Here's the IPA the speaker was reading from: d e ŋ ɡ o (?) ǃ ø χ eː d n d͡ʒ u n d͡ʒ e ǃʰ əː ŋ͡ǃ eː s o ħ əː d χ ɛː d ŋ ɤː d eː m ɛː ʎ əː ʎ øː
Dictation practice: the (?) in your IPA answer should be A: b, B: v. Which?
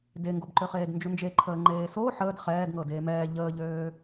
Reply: A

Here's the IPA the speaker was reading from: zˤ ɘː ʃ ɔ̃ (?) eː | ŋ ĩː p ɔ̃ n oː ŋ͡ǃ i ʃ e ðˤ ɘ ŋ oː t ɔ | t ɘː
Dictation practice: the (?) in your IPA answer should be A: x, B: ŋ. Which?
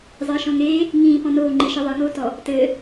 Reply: B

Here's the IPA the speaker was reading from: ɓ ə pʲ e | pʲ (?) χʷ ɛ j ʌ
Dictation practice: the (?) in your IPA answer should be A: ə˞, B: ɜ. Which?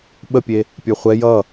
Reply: A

